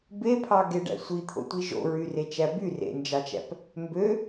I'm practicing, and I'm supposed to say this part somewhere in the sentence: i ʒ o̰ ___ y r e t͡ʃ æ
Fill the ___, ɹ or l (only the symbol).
ɹ